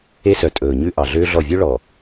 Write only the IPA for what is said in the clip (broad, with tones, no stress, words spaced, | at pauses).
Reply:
e˦sœ˨ tʼɵː˨ɲʉ˦ ʔɑ˨ɮøː˦ɮɔ˦˨ vʲø˦ɭɔ˨